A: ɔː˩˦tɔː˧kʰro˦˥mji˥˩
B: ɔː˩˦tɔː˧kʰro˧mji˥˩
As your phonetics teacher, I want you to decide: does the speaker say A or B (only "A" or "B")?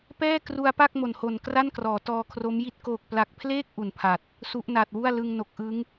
A